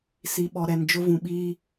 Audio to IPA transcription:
si˨ɓɔ˨ɾɛ˨n d͡ʒʊ˦vũ˨ɓiː˦

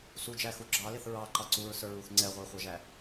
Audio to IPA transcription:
sud͡ʒæxu ɡ͡ǁɑlɪθ ɹɑǃɑ ǀuɹsə˞ɹuθ ŋ͡ǀɛʁʷɑχʷɑʒæ

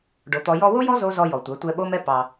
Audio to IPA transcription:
ɖo˨t̪ɔ˧ jɔ˧wo˦jɔ˦ zo˦zɔ˧ jɔ˨tʷɛ˨˦ tʷɛ˧ɓo˦mɛ˦ pɑ˧

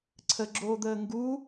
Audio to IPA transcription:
ǀʰəɡ͡ǁoːd̪əː ŋɡu

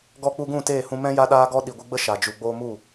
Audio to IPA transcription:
ɡɔ˧k͡pu˧ɡũ˦˨ teː˦˨hũ˧ mɛ̃˦ ja˦ɗaː˦ɡɔ˦ ɗi˨ɡʷɨ˧ɡ͡bə˦ ʃa˨d͡ʒu˨ ɡ͡boː˧mu˦˨

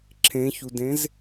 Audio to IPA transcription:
ǁʰẽçudẽz

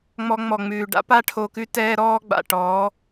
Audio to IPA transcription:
ŋ͡mɔ˧ŋ͡mɔ˨ŋ͡mʉː˨ ɖa̰˦pa˦ʈʰo˧kʉ˦ tɛː˦ɾɔː˦ɡ͡ba̰˨ ʈɔ˨˦

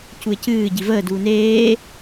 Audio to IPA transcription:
cuɪ̯cɨː ɟivəː duːneː

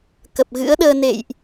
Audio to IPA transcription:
kə˨˩p̚ɣɨ̰˧˥ə̯ɗəː˧ nḛ˧˨jʔ

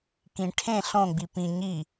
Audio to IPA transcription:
kĩ ʈʰẽ ɬõɡ͡bi pĩ ɲi

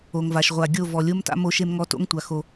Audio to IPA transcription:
o˨ŋva˨ʃ ʁʷa˨ ɡʲo˦˨ vɔ˨lʲo˦mta̰˦ mo˦ʃe˦mŋɔ˦ to̰˦ŋtʷa˨ xo˦

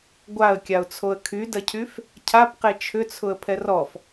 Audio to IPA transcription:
ɡʷaə̯kʲaʊ̯t͡sʰoə̯ kʰydɐcʰyf | cʰapqe t͡ʃʰʏt͡sʰʊə̯ pʰɛrɔf

